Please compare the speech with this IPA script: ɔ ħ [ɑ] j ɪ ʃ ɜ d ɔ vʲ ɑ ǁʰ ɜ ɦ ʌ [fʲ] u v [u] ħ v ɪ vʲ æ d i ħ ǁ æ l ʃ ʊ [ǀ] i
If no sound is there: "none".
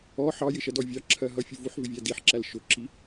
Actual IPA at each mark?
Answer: ɑ, fʲ, u, ǁ

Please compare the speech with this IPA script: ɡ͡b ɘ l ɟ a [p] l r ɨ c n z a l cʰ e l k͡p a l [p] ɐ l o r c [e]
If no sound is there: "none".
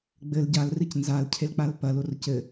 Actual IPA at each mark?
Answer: none, p, ɘ

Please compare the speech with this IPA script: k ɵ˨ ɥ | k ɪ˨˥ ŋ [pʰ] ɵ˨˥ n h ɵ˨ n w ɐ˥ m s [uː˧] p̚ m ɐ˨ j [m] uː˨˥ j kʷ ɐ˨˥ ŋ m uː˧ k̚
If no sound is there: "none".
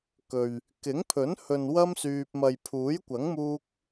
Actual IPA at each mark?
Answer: pʰ, yː˧, pʰ

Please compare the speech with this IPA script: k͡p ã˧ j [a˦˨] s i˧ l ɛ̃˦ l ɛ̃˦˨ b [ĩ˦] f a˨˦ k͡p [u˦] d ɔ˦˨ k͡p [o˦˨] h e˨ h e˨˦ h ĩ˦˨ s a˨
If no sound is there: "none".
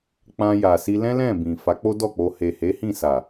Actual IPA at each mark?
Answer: a˨, ĩ˨, o˦, o˧

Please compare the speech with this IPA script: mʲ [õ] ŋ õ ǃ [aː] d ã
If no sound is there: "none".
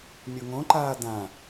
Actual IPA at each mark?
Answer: o, aː

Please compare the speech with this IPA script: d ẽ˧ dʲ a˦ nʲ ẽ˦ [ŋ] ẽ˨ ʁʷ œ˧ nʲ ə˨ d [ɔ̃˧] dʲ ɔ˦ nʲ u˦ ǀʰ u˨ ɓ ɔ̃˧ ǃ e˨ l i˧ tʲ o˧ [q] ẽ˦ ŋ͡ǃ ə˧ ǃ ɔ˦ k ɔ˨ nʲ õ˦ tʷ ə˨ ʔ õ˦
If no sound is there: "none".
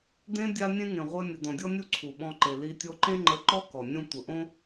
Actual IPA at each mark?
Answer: ŋ, ɔ̃˨, ǃ

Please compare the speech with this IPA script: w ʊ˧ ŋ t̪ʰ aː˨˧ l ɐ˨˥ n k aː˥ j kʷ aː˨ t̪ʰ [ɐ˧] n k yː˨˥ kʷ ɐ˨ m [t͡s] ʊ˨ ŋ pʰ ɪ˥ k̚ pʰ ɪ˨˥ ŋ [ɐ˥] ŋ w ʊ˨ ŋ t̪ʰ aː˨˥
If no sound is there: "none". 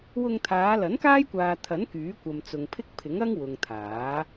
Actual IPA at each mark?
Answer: ɐ˨˥, t͡s, ɐ˥

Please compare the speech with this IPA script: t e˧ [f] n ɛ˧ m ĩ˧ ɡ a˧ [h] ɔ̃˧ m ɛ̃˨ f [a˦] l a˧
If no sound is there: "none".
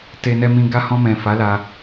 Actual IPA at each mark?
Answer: none, h, a˨˦

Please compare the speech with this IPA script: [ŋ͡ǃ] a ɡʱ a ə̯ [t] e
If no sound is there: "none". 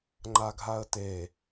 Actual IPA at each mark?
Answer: ŋ͡ǃ, t

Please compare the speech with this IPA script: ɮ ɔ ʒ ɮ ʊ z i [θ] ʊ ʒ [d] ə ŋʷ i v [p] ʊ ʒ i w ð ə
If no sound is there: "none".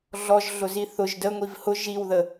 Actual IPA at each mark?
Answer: θ, d, h

